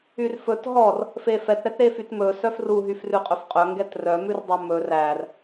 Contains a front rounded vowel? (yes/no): yes